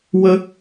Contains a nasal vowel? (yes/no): no